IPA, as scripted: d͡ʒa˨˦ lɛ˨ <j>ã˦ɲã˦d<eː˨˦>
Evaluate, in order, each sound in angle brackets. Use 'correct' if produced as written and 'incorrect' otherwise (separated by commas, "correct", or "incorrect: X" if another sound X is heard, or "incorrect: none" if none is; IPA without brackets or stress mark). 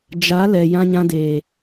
correct, incorrect: eː˨